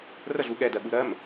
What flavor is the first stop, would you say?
implosive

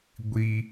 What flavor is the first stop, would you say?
plain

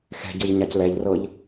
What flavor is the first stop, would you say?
plain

